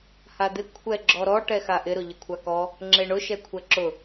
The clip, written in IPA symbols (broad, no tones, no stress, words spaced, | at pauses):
had̪ɪ kʷʰɛɡ͡ǁɔɾɔ ʈɛxaʔɪ ɾʊʎɪkʷʰakɔ | ŋ͡ǁeɳʊ ʃɛkʷʰɛǁʊ